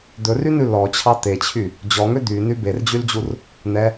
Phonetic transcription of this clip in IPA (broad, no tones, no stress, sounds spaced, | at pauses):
d̪ ɵ r y n ʉ l ɔ t͡ɕʰ ɑ t̪ e t͡ɕʰ y | d͡ʑ ɔ ŋ ø d̪ y n y b e r d͡ʑ y l d͡ʑ u r | n̪ ɛ